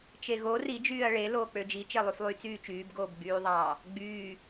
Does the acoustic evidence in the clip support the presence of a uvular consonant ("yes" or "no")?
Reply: no